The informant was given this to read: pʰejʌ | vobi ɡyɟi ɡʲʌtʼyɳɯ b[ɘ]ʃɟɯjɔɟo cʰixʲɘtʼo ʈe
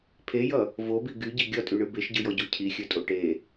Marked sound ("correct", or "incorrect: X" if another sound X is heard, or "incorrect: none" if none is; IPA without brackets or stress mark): incorrect: e